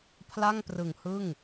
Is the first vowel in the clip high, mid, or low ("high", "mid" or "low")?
low